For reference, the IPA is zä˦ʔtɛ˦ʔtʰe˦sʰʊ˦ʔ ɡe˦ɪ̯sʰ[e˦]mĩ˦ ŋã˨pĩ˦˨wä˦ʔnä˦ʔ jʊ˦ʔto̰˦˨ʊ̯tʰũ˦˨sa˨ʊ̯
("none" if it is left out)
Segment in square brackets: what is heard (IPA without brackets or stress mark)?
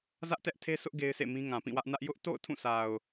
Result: ḛ˦˨